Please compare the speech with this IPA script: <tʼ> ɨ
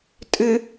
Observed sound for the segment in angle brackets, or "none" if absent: tʼ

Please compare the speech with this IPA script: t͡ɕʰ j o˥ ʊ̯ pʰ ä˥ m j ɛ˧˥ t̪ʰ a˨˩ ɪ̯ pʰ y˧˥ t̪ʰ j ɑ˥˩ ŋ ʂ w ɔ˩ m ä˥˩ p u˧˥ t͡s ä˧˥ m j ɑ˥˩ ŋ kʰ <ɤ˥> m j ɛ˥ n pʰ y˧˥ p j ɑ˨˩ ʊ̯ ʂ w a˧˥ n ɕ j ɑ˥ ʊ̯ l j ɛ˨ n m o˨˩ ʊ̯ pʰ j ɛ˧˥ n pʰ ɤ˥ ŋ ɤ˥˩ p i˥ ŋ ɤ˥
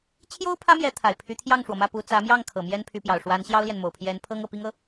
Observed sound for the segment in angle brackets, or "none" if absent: ɤ˨˩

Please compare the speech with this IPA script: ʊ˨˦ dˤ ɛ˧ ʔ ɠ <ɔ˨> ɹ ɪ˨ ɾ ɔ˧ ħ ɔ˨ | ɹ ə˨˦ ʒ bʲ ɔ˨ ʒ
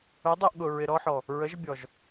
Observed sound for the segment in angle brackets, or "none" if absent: ʊ˨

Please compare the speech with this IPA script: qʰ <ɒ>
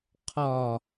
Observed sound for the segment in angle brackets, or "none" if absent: ɒ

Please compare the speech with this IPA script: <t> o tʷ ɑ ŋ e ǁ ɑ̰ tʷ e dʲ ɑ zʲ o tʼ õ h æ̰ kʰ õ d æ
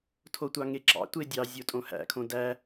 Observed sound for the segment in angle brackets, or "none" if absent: tʰ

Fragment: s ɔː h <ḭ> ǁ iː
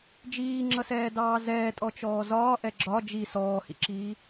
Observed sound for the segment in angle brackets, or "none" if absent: ḭ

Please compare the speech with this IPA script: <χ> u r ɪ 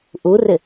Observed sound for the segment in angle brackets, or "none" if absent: ʔ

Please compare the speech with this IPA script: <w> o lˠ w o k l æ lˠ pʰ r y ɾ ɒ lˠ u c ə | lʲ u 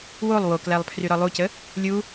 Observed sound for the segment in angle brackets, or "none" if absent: w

